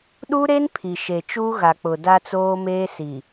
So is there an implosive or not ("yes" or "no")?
yes